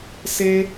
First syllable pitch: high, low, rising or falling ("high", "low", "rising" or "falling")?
high